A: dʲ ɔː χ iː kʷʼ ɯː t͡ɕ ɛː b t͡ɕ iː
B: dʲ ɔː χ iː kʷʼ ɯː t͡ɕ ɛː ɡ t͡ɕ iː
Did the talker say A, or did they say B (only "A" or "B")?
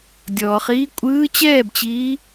A